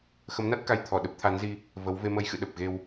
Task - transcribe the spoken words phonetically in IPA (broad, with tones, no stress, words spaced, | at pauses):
xə˨˦mna˦˥t̚ka˨˦j t̪ʰɔ˧˩ɗə˦˥p̚t̪ʰa˨˦nzi˧ | və˨˦w ve˧mə˧jxɨ̰˧˨ ɗə˨˩p̚ɣe˧w